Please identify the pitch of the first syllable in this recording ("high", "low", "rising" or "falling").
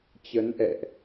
rising